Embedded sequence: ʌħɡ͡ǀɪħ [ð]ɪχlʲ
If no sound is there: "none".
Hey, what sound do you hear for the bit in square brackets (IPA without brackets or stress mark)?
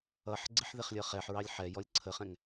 ð